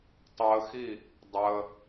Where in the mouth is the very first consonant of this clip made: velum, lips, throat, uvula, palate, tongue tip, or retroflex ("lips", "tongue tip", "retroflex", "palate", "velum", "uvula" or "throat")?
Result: tongue tip